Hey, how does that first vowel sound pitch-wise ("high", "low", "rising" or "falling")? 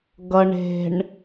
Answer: low